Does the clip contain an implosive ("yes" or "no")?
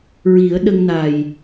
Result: yes